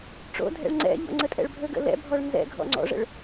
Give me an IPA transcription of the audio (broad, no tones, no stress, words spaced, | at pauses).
ʈ͡ʂo̰dʱɛ̰ɭ ŋ͡ǀɛ̰ʎɔ̰ ŋ͡ǀətʼɛ̰ɭbʱɵɡə̰ lɛ̰bʱɔɭ nzɛ̰ɡʱɔ̰ ŋ͡ǀɔ̰ʐə̰ɭ